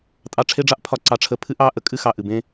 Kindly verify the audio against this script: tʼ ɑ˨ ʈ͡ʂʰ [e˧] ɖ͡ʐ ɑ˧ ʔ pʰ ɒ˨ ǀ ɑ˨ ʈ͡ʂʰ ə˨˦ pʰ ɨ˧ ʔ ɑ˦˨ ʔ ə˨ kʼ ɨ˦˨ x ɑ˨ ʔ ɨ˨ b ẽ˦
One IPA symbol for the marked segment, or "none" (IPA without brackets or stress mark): e˧